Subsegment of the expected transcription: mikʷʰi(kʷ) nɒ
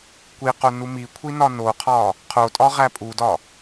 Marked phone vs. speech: incorrect: none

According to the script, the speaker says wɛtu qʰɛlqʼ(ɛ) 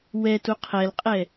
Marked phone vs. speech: correct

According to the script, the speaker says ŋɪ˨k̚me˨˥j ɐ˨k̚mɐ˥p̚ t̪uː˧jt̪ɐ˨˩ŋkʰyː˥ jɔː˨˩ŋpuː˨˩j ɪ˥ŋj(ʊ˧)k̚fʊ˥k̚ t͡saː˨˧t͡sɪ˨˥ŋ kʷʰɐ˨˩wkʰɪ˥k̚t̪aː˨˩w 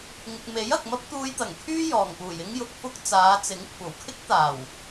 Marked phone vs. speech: correct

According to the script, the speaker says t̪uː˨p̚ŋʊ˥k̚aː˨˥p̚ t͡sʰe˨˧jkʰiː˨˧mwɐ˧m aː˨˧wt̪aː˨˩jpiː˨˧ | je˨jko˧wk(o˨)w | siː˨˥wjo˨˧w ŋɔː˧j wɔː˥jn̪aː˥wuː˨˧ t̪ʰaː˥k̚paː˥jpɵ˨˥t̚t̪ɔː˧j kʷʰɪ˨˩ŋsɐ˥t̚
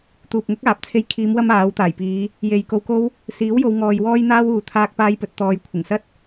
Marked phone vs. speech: incorrect: o˥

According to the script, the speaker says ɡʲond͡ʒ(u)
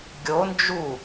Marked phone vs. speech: correct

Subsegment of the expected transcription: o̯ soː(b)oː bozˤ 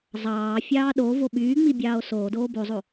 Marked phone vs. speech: incorrect: d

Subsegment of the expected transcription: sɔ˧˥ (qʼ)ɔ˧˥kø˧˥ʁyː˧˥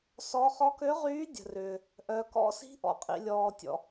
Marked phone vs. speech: incorrect: χ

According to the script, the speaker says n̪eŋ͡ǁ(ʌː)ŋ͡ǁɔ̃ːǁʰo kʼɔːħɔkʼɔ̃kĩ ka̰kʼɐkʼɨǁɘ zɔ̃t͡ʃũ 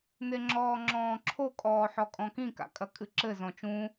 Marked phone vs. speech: incorrect: ɔː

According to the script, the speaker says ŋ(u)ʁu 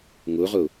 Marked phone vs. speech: correct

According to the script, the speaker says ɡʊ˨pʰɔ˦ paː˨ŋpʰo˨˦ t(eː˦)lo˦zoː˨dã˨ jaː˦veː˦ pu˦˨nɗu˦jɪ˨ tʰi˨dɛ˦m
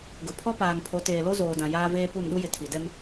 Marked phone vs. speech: incorrect: eː˨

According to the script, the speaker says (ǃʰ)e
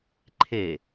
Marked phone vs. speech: correct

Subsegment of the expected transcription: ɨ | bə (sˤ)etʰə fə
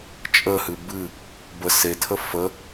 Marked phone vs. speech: incorrect: s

